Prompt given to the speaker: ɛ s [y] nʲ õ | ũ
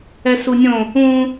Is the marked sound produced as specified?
no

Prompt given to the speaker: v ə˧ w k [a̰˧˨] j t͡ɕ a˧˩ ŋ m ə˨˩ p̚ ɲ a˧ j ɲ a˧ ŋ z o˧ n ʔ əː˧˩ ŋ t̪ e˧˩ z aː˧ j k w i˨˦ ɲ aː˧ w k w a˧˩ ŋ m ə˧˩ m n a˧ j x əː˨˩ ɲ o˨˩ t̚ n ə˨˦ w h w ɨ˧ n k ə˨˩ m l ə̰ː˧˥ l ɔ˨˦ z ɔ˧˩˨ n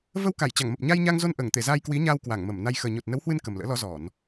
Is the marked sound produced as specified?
no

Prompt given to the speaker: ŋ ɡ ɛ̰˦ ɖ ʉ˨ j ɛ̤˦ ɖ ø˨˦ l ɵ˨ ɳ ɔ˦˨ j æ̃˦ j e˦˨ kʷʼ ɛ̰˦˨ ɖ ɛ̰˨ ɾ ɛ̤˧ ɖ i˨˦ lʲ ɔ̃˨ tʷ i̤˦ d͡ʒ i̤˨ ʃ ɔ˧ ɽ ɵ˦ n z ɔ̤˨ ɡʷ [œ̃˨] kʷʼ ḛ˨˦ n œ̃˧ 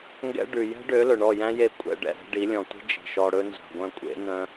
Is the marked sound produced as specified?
no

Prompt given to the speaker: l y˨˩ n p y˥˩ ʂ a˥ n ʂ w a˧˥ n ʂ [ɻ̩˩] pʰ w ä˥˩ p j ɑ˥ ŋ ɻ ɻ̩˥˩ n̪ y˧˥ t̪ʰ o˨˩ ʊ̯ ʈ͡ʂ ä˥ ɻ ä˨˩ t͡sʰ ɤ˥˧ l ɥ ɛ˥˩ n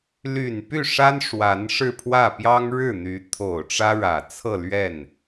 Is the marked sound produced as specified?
no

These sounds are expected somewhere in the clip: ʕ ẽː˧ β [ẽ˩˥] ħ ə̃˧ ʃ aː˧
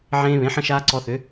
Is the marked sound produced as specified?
yes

